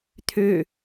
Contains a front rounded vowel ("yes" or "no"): yes